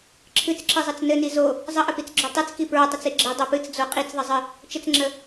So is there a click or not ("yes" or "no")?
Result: yes